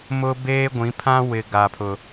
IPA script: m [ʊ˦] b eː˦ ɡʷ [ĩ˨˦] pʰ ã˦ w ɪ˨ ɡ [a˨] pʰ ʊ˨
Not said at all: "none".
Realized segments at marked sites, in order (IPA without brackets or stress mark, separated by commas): ʊ˦, ĩ˨˦, a˨